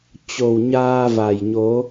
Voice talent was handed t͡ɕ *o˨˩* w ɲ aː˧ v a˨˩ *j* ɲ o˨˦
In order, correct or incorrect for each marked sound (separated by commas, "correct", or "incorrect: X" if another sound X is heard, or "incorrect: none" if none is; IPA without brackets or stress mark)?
correct, correct